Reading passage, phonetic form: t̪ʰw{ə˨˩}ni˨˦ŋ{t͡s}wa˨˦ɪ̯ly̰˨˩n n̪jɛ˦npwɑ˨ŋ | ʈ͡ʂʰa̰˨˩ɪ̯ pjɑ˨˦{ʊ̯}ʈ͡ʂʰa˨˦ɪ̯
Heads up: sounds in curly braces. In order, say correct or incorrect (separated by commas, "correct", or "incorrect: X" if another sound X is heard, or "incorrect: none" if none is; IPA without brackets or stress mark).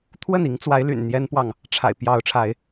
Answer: incorrect: ə˥˨, correct, correct